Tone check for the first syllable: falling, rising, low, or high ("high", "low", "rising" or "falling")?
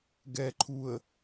low